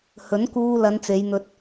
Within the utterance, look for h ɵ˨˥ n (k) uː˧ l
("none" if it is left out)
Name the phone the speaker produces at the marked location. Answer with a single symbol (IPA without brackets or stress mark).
k